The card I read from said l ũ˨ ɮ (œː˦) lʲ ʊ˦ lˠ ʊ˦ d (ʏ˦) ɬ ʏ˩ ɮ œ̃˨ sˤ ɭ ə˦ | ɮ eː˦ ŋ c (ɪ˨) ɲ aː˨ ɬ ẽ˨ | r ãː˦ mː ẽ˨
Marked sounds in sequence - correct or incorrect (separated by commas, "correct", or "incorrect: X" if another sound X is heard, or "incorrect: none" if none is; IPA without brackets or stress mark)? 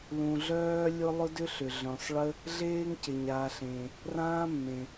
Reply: correct, correct, correct